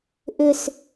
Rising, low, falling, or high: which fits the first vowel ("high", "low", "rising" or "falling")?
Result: falling